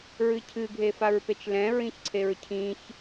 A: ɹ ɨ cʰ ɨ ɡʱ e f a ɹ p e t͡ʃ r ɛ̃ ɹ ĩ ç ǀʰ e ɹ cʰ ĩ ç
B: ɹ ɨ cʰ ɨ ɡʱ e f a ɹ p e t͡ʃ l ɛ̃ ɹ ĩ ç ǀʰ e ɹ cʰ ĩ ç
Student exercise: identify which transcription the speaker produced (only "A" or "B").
B